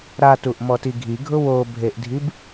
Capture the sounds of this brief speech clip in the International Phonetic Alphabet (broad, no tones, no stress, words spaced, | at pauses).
ɾatuʔ mɔtiɡʱiɡʱʊ wobʱeʔdʱib